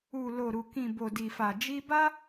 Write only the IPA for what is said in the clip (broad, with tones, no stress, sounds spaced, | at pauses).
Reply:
u˨ l o˨ ɾ u˨ k ĩ˨ b o˨ d i˨ f a˨ d͡ʒ i˧ b a˦